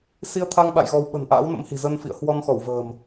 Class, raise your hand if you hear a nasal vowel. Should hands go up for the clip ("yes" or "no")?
no